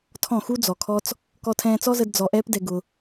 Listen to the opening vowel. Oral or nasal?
nasal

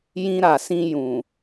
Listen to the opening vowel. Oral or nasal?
nasal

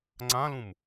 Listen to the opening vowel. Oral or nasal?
nasal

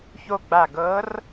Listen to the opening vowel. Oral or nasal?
oral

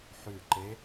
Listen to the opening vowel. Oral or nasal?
oral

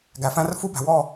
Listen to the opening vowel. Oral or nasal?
oral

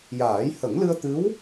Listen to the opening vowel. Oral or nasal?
oral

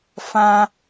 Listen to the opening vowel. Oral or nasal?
nasal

